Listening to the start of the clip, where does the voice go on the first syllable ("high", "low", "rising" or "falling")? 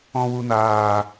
low